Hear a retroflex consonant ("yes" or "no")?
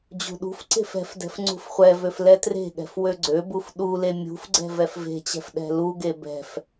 no